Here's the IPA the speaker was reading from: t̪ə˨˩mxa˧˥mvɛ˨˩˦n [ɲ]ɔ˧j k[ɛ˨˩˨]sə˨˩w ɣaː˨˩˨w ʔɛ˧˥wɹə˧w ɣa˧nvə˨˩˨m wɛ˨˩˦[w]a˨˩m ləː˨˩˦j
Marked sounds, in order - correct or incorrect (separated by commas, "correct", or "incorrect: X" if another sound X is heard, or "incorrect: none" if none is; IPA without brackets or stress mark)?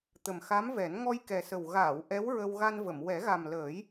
incorrect: ŋ, incorrect: ɛ˨˩, incorrect: ɣ